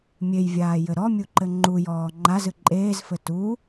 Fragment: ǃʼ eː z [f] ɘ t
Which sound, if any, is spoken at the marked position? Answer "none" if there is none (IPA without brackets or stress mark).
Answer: f